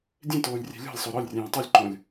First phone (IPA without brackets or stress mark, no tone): dʲ